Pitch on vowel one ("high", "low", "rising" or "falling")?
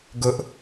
high